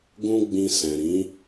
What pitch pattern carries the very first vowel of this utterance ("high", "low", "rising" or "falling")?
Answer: high